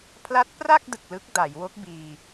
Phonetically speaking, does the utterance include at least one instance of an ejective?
no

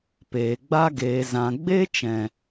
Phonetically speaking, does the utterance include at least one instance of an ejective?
no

